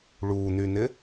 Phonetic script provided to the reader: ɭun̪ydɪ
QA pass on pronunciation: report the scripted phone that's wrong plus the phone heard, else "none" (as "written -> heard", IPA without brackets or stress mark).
d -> n̪